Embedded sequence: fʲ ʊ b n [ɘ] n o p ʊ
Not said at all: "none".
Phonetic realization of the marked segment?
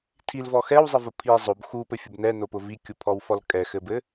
ɛ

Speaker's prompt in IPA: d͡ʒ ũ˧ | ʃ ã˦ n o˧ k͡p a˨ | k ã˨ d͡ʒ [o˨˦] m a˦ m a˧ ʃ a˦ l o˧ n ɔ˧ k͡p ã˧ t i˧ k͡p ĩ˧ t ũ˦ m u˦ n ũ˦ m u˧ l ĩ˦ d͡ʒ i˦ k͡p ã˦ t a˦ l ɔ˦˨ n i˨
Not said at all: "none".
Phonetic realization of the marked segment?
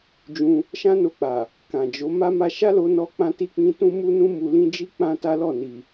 o˨˦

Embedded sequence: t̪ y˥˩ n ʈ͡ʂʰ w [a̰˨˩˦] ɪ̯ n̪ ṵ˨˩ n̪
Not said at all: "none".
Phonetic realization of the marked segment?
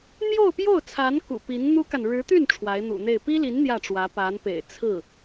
a˧˥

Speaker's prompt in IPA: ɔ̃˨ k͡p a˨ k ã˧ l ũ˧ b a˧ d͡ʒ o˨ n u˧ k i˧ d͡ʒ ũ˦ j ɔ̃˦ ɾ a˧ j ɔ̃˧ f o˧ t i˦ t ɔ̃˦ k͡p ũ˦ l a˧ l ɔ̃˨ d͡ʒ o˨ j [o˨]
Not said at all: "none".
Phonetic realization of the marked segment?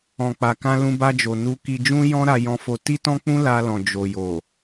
o˨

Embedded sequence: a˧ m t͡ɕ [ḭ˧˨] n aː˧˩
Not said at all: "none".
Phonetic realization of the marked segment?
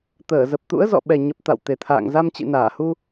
ḭ˧˨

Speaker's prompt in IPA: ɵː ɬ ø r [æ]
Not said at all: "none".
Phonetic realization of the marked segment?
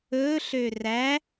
æ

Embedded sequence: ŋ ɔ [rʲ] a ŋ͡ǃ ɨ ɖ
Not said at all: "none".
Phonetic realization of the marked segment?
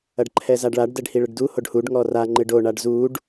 r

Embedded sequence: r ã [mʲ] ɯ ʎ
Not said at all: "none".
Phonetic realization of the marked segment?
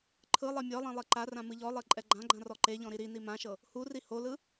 m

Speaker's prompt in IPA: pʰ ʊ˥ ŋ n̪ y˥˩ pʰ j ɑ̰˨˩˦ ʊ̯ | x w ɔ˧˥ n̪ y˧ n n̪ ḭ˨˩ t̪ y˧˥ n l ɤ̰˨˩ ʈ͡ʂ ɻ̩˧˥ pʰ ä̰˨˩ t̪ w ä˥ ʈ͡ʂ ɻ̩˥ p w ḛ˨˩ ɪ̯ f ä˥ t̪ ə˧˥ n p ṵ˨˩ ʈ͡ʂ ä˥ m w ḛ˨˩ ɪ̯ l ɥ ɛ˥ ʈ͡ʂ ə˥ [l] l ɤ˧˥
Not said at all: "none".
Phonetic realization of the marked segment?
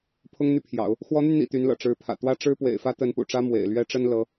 n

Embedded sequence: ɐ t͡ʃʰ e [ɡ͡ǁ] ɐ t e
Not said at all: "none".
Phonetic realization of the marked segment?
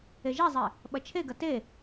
ɡ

